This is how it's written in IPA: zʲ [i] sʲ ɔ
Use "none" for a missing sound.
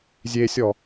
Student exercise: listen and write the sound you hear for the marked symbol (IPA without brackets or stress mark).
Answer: e